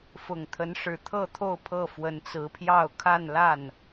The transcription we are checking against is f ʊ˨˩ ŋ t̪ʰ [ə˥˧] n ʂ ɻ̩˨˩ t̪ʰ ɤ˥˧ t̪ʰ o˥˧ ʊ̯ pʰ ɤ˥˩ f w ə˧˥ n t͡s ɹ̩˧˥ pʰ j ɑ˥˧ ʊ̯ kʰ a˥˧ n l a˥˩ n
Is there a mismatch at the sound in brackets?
yes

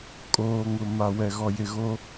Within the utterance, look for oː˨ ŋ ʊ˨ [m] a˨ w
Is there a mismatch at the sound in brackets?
no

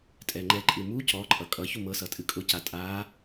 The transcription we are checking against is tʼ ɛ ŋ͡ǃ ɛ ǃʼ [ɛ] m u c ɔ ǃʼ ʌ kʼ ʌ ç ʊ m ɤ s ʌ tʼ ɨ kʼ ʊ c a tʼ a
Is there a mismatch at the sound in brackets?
yes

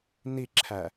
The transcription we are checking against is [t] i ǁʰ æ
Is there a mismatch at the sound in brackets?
yes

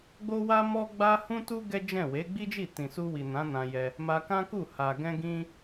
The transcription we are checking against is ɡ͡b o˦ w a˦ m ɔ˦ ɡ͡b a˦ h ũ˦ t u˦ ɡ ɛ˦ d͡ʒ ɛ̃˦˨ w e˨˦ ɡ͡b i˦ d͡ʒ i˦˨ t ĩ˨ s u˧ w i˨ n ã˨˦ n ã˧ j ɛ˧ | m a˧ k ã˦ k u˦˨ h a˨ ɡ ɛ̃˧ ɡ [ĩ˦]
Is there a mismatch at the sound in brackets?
no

